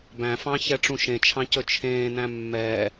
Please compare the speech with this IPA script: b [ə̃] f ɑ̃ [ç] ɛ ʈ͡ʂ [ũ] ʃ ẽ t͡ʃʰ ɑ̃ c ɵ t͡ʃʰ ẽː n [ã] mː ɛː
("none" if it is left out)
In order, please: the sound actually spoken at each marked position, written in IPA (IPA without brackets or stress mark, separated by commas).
æ̃, ç, ũ, æ̃